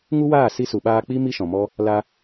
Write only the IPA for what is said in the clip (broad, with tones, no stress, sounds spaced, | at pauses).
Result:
ŋ u˦ w aː˦˨ s i˧ s u˨ ɓ aː˧ k͡p i˦ m i˦ ʃ ɔ̃˨ m ɔ˦ | l a˧